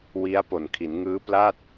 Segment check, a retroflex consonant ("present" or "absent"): absent